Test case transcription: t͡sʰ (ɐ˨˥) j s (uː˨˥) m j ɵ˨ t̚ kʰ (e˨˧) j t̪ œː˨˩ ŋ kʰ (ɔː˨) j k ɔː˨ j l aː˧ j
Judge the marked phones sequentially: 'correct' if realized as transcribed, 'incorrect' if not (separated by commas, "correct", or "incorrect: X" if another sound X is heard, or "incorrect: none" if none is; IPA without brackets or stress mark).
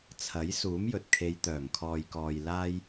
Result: correct, correct, correct, correct